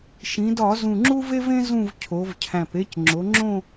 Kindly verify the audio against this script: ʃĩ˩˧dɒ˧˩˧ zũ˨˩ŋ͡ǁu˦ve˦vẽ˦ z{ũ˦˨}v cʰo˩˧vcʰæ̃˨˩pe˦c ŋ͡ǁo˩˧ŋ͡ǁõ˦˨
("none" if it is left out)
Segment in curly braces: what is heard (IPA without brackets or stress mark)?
ũ˦˨